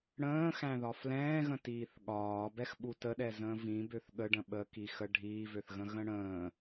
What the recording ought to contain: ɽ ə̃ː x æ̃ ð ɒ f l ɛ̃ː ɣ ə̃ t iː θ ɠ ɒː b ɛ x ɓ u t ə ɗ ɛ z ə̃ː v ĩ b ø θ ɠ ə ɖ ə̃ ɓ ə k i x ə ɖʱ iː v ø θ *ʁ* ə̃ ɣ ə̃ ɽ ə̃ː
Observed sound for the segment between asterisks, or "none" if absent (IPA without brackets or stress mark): ɣ